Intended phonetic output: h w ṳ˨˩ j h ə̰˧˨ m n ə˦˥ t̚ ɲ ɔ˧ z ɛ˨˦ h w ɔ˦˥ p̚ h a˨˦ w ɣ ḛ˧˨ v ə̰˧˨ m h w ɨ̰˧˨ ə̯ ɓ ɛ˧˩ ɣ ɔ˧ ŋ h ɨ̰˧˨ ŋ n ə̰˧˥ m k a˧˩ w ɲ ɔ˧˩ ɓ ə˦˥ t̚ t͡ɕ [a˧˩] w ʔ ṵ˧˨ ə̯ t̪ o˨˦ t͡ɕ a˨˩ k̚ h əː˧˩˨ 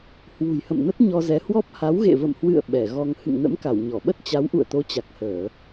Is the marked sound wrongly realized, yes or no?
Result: yes